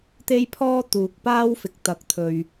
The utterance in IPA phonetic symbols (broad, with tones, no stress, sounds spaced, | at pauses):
t̪ e˥ j pʰ ɔː˥ t̪ uː˨ k̚ p aː˥ w f ɪ˨ k̚ t̪ ɐ˨˥ k̚ t̪ʰ ɵ˨ ɥ